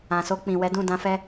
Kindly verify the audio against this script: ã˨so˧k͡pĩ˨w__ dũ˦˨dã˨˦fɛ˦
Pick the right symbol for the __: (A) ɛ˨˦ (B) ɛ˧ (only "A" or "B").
A